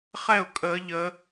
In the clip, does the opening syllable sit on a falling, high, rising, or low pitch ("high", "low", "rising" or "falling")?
falling